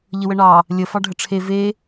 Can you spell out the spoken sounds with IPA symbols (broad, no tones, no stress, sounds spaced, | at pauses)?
ʎ ə w ə ɳ ɑ | lʲ ə f ɑ ɖʱ ə ʈ͡ʂʰ e v e